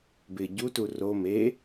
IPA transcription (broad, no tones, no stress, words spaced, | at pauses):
bɪ ɟutu ro me